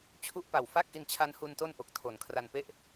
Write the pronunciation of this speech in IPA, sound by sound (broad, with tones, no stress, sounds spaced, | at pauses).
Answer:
t͡ɕʰ u˦˥ ʔ p a˨˩ w f a˥˩ k̚ ʔ i˧ n t͡ɕʰ a˦˥ n h u˧ n t o˥˩ n ʔ o˨˩ k̚ tʰ o˨˩ n kʰ r a˧ n p e˥˩ ʔ